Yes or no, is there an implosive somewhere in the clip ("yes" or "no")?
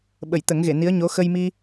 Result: yes